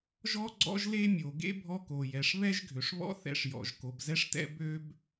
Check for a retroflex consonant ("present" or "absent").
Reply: present